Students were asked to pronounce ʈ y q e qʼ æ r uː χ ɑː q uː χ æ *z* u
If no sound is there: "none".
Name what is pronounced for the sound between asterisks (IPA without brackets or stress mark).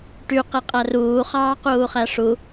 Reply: ʂ